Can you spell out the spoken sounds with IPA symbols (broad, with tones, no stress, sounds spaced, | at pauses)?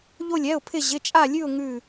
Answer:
ʎ o˥˧ lʲ ɛ˧˥˧ ʊ̯ pʰ ɪ˥˧ ʑ ɪ˧˥˧ t͡ʃʼ a˥˧ lʲ ʉ˥˧ ʊ̯ ŋ ʉ˥˧